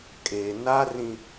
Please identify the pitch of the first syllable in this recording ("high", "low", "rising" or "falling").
low